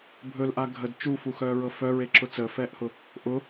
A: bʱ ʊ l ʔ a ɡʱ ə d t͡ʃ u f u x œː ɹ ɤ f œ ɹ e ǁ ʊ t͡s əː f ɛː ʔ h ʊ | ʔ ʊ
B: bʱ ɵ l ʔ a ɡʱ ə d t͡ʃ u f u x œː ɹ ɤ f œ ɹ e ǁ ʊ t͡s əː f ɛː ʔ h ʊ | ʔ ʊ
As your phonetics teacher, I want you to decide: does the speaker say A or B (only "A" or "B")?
B